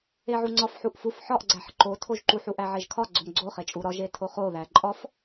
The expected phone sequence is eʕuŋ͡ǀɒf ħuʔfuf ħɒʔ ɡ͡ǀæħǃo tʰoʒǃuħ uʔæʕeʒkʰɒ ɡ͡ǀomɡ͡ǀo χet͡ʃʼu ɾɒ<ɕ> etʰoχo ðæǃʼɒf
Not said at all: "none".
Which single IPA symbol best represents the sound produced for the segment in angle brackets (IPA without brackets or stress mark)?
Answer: ʒ